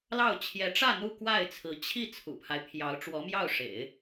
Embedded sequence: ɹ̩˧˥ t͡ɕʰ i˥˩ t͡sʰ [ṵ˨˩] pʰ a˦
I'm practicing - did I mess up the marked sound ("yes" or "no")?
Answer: no